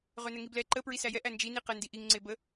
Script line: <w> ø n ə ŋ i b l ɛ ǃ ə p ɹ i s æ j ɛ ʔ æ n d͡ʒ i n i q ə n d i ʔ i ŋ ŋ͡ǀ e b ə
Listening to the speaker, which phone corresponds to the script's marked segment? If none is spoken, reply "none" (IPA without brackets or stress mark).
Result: ʁ